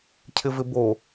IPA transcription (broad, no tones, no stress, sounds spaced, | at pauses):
cʰ ɪ v ɪ b o